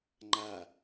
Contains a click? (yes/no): yes